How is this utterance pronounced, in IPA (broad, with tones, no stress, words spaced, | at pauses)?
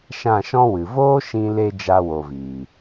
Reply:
ʃã˦˨ʃɔ̃˦wɨ˨ voː˦ʃĩ˧le˧ d͡ʒa˧wo˨viː˨